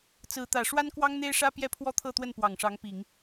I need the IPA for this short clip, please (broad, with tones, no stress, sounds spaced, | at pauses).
t͡s ɹ̩˧˥ t̪ ä˨˩ ʂ w a˥ n k w ɑ˥ ŋ n̪ e˥ ɪ̯ ʂ ä˥ p j ɛ˥ pʰ w ɔ˥ t̪ʰ ɤ˥˧ t̪ w ə˥˩ n p w ɑ˨˩ ŋ ʂ ɑ˧˥ ŋ p i˨˩˦ ŋ